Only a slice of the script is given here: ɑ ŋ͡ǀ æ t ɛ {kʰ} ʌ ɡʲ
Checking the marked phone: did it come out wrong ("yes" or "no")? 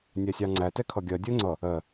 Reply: no